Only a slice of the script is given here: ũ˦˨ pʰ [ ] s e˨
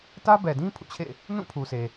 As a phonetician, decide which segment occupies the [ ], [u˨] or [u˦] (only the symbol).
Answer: u˨